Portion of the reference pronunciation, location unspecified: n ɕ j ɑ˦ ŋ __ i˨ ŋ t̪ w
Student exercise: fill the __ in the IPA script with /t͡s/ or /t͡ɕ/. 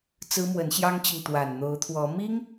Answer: t͡ɕ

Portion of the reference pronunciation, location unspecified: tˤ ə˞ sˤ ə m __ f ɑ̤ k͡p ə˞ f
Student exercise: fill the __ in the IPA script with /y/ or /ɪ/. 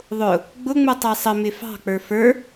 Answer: ɪ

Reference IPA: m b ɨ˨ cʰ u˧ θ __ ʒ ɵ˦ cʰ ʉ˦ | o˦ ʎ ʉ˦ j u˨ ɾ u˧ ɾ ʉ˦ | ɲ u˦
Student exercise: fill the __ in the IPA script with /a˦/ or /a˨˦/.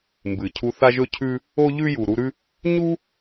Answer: a˦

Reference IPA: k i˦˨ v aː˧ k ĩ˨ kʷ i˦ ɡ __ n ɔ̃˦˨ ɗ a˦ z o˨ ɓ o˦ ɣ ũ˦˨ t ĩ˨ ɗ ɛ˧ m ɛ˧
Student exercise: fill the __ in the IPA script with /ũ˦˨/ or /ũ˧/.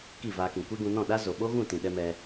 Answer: ũ˧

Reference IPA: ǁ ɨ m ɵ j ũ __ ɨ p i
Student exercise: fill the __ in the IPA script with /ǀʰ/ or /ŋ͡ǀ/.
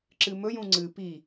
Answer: ŋ͡ǀ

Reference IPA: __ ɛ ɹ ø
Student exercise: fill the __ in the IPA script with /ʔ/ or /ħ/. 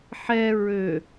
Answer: ħ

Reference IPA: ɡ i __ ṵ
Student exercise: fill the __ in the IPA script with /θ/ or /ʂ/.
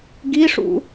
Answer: ʂ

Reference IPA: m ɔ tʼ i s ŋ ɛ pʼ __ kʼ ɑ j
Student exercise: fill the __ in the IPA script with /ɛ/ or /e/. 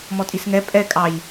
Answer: ɛ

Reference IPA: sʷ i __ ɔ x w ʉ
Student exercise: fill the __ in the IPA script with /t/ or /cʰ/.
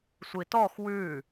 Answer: t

